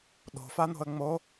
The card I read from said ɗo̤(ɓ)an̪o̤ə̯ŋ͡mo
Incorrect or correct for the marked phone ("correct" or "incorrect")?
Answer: incorrect